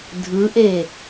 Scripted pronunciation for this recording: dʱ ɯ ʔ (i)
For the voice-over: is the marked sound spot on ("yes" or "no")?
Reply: no